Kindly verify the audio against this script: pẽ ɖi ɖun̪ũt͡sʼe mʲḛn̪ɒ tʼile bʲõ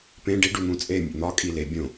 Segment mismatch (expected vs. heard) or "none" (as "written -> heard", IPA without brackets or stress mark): tʼ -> kʼ